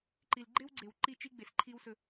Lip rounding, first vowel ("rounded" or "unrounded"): unrounded